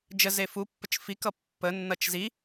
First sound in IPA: d͡ʒ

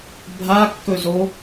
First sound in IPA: bʱ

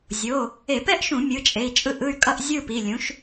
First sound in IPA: zʲ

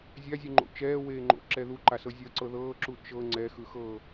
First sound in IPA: zʲ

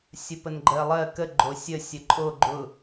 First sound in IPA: sʲ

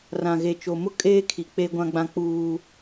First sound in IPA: r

